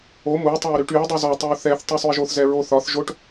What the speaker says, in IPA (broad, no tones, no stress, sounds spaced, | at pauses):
o m u tˤ ɵ y̯ ɾ y ʈ y u̯ dˤ u z ɒ tˤ ɛ u̯ θ ɛ θ tˤ u sˤ u i̯ ʒ o θ z ɛ ɹ o θ ɒ θ ʒ o ʈ